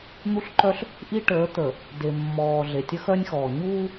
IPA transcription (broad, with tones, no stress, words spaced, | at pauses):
n̪u˦ɬǃœ˦ɬ | ʔi˦ ʈəː˨˦ t̪ə˨ | de˨mːɔː˨ ɮe˨tʲə˦xœ˦nʲxɔː˨ ɲuː˦